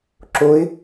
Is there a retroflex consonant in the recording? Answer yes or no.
no